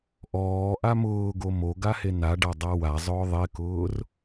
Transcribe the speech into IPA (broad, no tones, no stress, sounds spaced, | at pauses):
ʔ ɔː ʔ a m ʊː ɡ o m o ɡ a h e n a ɖ a dˤ a w a zˤ ʊː ðˤ e k ʊː r